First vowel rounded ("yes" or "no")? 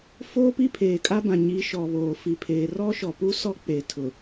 yes